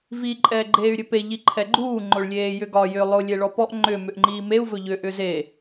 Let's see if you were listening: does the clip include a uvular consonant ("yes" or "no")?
no